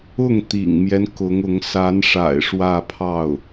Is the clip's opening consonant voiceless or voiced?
voiced